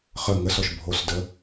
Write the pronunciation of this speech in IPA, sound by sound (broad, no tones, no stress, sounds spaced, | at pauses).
χ ə ŋ ə s ɔ ʃ bʱ o s d ə